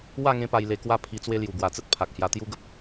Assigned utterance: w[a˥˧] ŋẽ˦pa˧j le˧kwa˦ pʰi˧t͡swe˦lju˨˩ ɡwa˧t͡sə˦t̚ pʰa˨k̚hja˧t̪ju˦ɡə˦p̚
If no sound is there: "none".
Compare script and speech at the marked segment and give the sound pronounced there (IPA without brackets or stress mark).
a˥˧